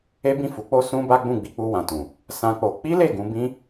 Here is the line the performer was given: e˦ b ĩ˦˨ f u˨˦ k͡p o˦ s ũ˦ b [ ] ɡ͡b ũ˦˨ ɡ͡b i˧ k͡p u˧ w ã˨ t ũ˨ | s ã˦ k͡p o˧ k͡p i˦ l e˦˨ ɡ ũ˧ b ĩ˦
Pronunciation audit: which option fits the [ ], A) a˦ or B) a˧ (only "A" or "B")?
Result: A